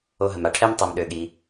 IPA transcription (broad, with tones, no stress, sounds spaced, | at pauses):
o˧ ɦ ə˩ m a˩ ʈʰ ɛ˥ m tˤ ɜ˩ m ɗ ø˩ ɠ i˩